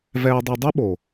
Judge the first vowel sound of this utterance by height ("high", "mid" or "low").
mid